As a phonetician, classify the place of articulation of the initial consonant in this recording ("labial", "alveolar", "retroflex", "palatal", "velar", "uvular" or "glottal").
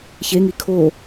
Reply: palatal